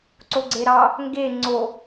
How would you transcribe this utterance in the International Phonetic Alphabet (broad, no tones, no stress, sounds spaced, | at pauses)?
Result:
ǀ o ɡ͡ǀ e ɾ ɑ | ŋ ɡ e ŋ͡ǀ o